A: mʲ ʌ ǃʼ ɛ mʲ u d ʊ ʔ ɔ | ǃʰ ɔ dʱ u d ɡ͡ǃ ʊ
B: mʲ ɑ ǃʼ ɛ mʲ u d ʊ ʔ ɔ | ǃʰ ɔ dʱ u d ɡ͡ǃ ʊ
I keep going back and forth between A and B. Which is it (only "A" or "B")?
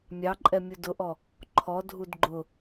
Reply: B